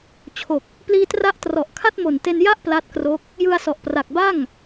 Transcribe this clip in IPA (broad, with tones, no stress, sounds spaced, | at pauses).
t͡ɕʰ o˨˩ k̚ | p l iː˧ t r a˦˥ ʔ t r ɔ˨˩ ʔ kʰ a˥˩ t̚ m o˨˩ n t e˧ n j a˥˩ ʔ p l a˦˥ t̚ k r o˦˥ k̚ | j ɯ˧ a̯ s ɔ˨˩ ʔ p r a˨˩ k̚ b a˥˩ ŋ